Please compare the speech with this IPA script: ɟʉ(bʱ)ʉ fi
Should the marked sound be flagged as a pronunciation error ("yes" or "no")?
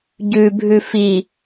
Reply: no